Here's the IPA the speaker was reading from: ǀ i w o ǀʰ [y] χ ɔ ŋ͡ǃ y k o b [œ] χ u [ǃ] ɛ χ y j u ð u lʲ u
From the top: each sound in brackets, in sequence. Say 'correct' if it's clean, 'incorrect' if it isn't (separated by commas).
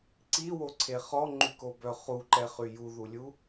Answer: incorrect, correct, correct